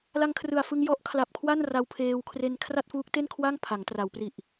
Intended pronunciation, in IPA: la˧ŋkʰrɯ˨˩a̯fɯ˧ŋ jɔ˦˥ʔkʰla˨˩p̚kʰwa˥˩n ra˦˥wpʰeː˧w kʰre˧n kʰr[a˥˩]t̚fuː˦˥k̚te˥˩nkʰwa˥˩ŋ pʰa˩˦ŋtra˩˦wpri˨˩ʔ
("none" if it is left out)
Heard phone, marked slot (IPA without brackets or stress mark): a˥˩